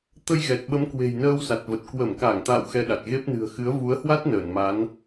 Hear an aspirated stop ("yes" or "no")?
no